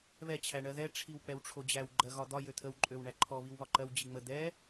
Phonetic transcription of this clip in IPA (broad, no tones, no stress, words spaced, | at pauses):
βɛ t͡ɕʰæɳɜðɛ ʈ͡ʂʰiwk͡pɛwʈ͡ʂʰod͡ʑæw ɡ͡ǃɜɣɒd̪ɒ jøt̪ʰəw ǃʼøwɳæǃʰɔ βiwβɒǃɜw d͡ʑiŋ͡mə d̪ɛ